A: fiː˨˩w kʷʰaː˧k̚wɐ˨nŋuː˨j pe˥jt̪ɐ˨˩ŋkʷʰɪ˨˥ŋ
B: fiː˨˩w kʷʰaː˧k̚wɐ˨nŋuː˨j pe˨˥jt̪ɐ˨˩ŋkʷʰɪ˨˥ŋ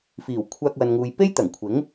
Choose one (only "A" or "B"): A